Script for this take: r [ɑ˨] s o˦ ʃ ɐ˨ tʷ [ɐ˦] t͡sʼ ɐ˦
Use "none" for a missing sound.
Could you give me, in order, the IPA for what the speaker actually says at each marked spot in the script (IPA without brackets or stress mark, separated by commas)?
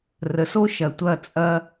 ə˨, ɐ˦˨